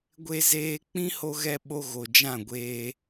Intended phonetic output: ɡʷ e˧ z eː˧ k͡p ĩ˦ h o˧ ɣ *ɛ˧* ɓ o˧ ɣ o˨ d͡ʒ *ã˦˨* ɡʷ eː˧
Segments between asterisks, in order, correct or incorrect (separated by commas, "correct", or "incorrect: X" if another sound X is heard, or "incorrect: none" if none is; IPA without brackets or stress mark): correct, correct